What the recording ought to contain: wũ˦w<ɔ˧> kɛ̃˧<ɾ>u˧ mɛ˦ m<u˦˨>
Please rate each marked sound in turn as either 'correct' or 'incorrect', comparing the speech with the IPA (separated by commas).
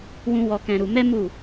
correct, correct, correct